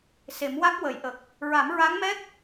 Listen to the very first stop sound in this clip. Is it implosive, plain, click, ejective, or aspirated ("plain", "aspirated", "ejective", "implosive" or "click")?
plain